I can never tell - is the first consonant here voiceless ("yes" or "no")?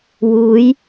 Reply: no